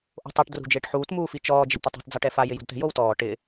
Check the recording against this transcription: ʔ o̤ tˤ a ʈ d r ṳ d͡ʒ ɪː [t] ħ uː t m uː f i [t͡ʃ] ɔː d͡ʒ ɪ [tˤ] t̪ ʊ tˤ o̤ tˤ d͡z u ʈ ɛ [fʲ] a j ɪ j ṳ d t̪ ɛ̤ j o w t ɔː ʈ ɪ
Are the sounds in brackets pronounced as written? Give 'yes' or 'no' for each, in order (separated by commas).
no, yes, no, no